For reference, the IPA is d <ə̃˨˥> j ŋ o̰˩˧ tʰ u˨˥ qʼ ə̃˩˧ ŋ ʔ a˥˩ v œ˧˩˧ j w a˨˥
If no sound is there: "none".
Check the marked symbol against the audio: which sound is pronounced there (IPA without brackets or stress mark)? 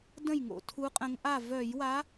ə̃˥˩